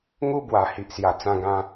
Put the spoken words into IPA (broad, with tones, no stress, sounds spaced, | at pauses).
ŋ u˧ b w a˨˩ h i˨ ʔ s j a˨˩ t͡s ã˧ ɡ ã˧